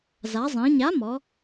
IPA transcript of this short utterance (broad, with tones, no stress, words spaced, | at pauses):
za˩˧zˤĩ˩˧ɲa˨˥mɔ˩˧